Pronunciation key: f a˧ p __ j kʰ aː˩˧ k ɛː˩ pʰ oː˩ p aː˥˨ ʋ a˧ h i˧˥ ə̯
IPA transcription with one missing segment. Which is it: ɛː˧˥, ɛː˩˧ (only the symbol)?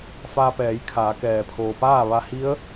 ɛː˩˧